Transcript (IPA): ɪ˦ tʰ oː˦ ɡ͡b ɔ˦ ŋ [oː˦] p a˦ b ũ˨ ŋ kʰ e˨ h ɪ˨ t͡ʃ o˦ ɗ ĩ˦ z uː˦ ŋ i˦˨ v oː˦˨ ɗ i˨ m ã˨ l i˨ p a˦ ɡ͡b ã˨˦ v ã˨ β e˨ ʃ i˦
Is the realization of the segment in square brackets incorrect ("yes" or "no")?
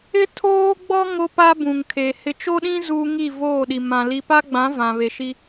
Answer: yes